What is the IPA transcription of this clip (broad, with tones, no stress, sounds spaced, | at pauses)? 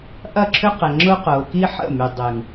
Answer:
ʔ ɐ˦˨ ǁʰ ʏ˦ q ɛ˨ ŋ͡ǁ ʊ˦ q ʊː˨ k i˦ ħ ə̰˦˨ m y˨ dˤ y˨ ŋ